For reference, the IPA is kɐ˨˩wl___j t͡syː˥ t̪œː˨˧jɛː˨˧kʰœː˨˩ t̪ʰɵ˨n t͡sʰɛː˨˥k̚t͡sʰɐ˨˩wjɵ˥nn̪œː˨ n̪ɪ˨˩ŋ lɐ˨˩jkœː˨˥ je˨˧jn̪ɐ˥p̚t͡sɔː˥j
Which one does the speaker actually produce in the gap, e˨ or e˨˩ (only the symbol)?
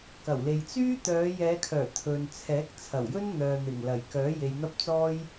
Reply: e˨